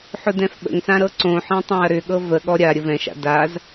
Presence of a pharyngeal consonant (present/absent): present